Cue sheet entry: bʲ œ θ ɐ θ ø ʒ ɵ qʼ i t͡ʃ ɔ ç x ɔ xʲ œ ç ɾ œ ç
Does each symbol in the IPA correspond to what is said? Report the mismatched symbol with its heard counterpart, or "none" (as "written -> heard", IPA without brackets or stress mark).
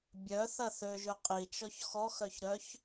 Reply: xʲ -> x